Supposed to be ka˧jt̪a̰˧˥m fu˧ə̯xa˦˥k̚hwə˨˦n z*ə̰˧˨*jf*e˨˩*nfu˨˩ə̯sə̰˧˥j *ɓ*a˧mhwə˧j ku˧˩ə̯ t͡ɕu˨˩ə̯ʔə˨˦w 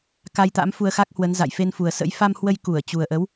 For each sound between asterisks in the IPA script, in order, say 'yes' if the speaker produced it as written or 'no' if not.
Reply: no, no, no

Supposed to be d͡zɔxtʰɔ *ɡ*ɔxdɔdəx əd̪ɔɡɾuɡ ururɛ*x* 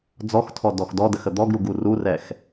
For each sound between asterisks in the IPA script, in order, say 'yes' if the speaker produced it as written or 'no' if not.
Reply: no, yes

